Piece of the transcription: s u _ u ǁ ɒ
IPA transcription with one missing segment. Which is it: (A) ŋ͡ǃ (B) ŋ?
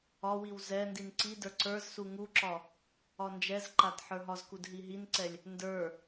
B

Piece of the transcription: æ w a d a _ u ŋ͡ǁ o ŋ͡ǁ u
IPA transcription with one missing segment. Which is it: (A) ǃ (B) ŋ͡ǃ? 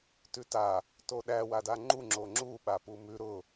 B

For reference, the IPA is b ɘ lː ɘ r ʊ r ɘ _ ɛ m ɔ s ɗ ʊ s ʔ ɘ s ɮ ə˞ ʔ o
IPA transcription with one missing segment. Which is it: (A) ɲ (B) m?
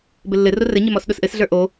A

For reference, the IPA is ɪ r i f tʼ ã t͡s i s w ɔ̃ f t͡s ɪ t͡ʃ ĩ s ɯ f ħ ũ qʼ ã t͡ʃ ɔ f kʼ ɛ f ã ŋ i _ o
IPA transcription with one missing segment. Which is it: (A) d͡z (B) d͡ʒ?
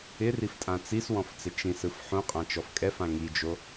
B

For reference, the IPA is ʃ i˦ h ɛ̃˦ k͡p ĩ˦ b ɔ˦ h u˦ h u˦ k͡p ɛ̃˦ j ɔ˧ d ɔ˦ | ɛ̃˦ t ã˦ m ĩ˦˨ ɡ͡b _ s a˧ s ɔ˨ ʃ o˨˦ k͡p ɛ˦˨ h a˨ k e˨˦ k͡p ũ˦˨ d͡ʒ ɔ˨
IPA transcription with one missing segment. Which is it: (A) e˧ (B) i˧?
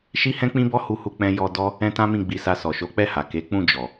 B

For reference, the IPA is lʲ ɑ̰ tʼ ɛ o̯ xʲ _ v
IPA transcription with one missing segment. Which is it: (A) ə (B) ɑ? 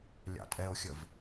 A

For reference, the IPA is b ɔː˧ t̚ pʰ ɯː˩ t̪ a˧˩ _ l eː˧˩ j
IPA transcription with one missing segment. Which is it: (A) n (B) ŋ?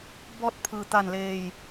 A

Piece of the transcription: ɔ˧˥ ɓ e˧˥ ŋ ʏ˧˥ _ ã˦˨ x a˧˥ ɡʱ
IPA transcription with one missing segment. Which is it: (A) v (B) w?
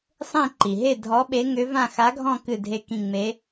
A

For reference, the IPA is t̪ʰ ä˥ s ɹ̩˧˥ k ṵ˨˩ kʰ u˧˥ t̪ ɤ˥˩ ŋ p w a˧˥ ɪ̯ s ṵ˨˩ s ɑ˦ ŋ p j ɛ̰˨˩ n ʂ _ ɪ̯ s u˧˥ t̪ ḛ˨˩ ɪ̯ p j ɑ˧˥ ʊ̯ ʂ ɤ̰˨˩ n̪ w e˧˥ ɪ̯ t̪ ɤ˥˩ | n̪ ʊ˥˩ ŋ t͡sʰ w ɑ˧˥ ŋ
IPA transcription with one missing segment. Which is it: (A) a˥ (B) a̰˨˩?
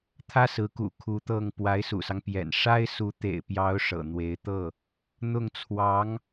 A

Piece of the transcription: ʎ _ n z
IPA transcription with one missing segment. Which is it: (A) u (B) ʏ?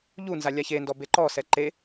A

